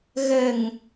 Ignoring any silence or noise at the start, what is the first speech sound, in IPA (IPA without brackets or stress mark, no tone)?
ɣ